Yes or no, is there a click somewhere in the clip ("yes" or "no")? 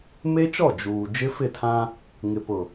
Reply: no